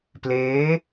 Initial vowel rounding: unrounded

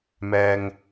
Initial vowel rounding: unrounded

